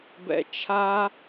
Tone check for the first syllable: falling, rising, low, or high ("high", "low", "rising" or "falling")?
low